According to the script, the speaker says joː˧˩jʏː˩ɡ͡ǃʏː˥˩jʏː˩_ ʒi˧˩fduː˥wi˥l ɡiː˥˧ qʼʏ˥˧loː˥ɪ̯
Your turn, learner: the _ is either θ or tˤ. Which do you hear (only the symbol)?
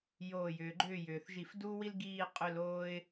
θ